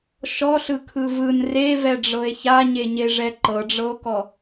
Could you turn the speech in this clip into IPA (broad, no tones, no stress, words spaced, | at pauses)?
ʃɔɬɯkʰɯ vɯn revɛɖ͡ʐɤe̯ çaɲeɲeʐɛ ǃɤɖ͡ʐɤo̯kɔ